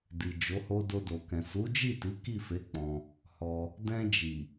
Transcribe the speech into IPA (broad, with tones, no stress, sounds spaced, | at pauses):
d i˨ d͡ʒ o˨˦ h o˦ d o˧ d o˨ k ɛ̃˨ s u˨˦ d͡ʒ i˦˨ t i˨˦ k i˦˨ f e˨˦ k͡p ɔ̃˧ | h ɔ˧ | d ɛ̃˧ d͡ʒ i˨